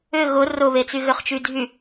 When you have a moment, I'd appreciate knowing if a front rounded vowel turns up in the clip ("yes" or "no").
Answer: yes